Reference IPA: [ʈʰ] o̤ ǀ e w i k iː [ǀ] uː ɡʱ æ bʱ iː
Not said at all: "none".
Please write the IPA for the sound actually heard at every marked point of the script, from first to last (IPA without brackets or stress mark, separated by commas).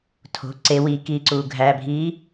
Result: tʰ, ǀ